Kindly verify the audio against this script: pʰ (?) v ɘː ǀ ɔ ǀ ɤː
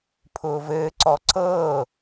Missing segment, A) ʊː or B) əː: A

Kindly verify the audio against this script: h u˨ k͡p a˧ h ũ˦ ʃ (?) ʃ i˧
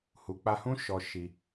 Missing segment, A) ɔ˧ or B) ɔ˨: A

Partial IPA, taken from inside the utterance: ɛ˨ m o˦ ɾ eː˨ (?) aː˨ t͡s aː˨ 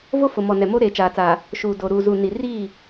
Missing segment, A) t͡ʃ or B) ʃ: A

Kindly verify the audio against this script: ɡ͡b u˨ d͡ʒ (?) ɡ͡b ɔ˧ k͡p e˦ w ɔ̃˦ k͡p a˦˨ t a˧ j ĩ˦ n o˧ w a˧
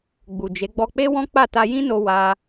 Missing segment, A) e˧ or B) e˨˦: B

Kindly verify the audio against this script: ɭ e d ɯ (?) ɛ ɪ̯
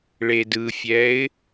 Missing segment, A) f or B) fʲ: B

